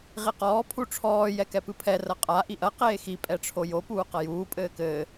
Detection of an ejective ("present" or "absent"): present